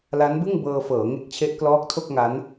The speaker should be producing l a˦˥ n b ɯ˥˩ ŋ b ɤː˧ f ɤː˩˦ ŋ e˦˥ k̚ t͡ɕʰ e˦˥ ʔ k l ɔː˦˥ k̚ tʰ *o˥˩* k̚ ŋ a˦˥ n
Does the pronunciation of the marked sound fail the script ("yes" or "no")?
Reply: no